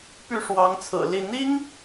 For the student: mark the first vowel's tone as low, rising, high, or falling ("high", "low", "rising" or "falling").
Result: falling